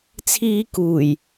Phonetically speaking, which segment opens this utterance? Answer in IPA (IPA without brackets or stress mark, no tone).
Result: t͡sʰ